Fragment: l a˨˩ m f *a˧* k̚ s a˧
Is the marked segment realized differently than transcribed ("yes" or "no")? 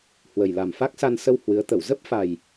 yes